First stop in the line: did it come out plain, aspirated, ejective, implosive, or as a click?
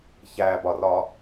plain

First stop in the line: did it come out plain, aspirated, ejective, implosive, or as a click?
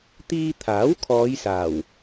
plain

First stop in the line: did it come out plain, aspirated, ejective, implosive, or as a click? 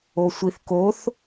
plain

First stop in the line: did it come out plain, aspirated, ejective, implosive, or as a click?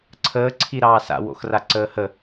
click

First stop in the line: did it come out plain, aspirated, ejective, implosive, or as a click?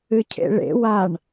aspirated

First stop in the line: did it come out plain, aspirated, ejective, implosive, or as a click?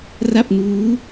plain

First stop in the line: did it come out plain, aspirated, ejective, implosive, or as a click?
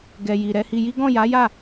plain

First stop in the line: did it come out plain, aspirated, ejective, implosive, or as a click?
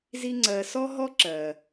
click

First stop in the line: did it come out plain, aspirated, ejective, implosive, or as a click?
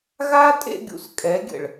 ejective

